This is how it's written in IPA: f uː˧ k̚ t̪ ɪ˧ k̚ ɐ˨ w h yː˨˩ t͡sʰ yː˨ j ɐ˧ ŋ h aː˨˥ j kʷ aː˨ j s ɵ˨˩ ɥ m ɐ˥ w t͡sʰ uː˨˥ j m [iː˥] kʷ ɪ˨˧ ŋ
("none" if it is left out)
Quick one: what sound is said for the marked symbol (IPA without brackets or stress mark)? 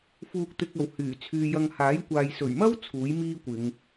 iː˥